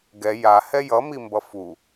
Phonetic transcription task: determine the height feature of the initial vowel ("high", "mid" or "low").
mid